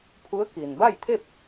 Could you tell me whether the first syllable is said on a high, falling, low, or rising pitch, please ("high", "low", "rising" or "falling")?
rising